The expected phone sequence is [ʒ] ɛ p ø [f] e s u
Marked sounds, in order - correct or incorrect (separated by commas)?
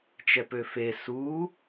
incorrect, correct